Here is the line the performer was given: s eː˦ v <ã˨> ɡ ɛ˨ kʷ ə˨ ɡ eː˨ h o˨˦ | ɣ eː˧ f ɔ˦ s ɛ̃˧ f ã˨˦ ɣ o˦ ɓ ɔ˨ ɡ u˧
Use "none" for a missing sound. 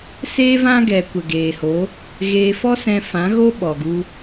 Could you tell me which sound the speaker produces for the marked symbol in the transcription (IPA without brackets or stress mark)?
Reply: ã˦